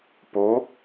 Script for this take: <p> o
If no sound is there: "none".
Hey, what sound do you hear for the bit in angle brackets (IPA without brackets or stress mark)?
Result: p